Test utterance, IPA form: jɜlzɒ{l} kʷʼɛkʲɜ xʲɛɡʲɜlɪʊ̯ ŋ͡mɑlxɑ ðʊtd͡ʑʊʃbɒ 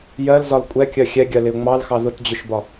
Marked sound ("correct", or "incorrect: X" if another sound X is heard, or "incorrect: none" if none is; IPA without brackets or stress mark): correct